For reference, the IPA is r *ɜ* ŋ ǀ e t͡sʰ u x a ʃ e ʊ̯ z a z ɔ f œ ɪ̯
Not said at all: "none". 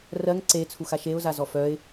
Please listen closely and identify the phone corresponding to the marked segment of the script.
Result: ɜ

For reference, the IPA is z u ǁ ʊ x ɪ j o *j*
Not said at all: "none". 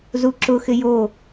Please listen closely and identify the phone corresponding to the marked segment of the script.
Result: none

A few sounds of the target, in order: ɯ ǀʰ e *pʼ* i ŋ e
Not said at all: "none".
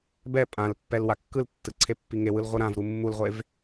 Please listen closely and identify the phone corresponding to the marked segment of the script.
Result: pː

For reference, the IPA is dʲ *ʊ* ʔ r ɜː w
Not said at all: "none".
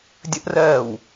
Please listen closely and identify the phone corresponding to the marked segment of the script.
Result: ə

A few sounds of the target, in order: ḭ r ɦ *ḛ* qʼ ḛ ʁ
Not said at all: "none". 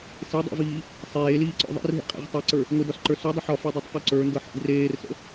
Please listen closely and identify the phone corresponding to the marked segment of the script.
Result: ḛ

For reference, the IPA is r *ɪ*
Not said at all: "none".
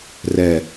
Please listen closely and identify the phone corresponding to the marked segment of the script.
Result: ɛ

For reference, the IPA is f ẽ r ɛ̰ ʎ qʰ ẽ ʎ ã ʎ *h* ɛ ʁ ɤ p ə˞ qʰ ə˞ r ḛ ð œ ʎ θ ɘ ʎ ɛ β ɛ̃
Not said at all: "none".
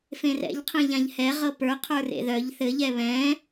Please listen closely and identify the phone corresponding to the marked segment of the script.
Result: h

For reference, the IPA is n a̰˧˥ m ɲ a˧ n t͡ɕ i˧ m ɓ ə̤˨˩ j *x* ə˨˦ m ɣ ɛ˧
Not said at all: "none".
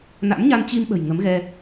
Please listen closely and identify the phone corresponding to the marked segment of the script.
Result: ŋ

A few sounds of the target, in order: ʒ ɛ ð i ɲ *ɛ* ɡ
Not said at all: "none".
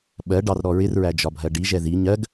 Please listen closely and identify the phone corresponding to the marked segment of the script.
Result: ɜ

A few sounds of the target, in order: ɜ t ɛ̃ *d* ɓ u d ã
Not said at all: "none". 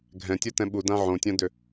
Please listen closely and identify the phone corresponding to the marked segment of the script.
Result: none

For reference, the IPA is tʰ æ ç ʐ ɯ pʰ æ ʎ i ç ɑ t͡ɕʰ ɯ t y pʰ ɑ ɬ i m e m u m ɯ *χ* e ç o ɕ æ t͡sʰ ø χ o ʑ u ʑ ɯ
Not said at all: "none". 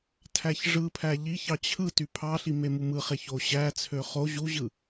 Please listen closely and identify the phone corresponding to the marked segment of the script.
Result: χ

